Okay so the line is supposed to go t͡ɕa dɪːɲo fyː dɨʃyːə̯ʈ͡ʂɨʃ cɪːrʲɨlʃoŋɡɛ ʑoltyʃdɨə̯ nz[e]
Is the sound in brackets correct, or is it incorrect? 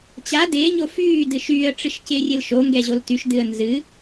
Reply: incorrect